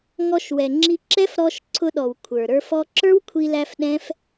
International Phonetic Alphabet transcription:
ŋ ɔ˧ ʃ w ɛ˨ ŋ͡ǁ i˧ ǁ ɛ˦ f ɾ ɔ˧ ʃ ǀʰ ʊ˧ ɗ ɔ˨ w kʷʰ ə˞˨ ɾ ə˞˧ f ɔ˧ ǁ ə˞˦ w kʷʰ i˧ l æ˧ f ɗ ɛ̃˦ f

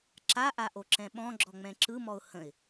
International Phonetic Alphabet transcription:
ǁ a ʔ a ʔ o ǁ ɛ̃ ɓ ɔ̃ ɡ͡ǁ ɔ ŋ͡m ɛ̃ ǁ ɯ m ɔ ʊ̯ h ə̃ ɪ̯

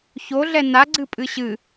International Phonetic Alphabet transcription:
ç o ɮ ɛ n a ɡ͡ǀ ɨ pʼ ɨ ɕ ɨ

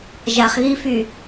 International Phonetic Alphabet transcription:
ʒ a χ ɣ i f y

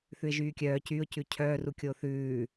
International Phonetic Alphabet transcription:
θ ʉ ɪ̯ ʒ yː kʲ œː c yː ʊ̯ c ʉ cʰ œː r u kʲ o θ ʉː

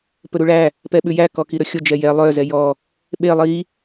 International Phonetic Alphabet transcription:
p ɵ ɾ u ɭ æ | p ɛ ɓ ʉ j æ k ɔ k i ɾ ɵ xʲ o d͡ʒ ɛ j ɛ lˠ œ z ɛ j ɔ | ɓ e lˠ i

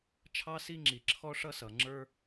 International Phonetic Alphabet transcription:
t͡ʃʰ ɑ˥ s i˥ ŋ͡ǁ i˩ ǁʰ ɔ˥ ʂ ʌ˥ s ʌ˩ ŋ͡ǁ ə˞˥

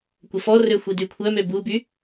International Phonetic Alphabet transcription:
kʷ ə f ɔ r ø xʷ i d y kʷʰ œ m ø b u b y

